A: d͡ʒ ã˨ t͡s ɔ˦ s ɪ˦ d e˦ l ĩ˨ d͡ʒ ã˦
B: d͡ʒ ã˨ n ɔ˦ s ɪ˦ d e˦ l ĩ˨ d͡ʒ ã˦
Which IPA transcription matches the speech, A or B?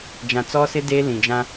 A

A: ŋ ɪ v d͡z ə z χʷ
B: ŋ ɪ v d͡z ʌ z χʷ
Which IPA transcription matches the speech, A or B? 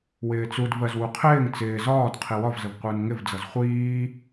B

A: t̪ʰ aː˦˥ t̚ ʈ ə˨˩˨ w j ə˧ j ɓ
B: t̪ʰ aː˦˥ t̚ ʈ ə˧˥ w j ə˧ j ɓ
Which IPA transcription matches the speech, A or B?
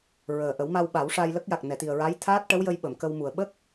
B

